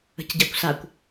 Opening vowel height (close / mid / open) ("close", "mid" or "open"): mid